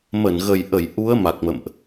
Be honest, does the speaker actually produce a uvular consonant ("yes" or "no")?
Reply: no